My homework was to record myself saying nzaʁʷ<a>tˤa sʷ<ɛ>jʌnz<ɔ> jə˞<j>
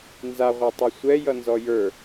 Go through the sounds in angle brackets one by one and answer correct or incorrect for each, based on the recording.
correct, correct, correct, incorrect: none

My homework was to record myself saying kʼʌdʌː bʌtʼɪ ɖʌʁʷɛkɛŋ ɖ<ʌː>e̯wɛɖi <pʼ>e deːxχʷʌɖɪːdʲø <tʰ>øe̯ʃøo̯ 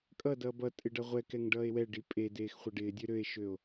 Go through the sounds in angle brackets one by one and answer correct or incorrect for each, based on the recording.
correct, correct, incorrect: ɾ

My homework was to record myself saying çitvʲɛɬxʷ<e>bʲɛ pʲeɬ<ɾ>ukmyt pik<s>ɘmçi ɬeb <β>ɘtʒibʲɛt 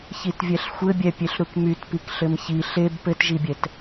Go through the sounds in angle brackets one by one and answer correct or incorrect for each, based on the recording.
incorrect: ɘ, correct, incorrect: ɬ, incorrect: p

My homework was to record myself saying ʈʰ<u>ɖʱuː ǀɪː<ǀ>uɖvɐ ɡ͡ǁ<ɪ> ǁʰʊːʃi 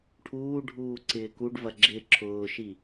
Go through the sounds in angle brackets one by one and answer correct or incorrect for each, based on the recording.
incorrect: uː, incorrect: k, correct

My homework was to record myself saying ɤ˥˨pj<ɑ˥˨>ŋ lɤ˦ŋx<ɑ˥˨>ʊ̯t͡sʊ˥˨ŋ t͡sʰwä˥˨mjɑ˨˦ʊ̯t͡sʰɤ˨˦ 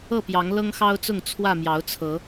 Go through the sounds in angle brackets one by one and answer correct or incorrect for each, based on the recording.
incorrect: ɑ˨˦, incorrect: ɑ˦

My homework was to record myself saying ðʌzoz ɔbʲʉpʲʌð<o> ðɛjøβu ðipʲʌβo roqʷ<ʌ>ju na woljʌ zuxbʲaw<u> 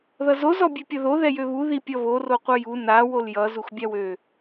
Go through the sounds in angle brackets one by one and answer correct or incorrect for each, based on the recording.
correct, correct, incorrect: ø

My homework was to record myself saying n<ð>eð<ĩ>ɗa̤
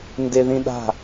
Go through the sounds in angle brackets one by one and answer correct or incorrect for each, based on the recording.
incorrect: d, correct

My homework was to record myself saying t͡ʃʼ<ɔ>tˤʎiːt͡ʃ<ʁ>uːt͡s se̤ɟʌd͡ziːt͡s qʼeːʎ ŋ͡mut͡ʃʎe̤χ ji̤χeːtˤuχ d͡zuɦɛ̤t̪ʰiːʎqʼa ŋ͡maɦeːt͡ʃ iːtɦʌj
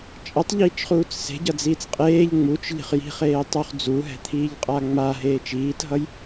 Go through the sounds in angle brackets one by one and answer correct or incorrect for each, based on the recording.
incorrect: ʌ, incorrect: χ

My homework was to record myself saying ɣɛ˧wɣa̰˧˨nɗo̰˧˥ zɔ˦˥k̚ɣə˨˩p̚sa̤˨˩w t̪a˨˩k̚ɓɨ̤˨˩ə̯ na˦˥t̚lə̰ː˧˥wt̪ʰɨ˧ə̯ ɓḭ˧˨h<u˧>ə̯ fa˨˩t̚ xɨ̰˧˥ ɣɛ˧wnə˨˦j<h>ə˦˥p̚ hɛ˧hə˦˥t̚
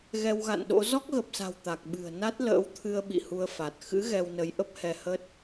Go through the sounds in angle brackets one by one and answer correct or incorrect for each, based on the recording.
correct, incorrect: ʔ

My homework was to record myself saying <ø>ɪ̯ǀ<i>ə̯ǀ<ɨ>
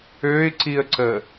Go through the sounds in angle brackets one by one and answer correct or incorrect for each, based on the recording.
correct, correct, incorrect: ə

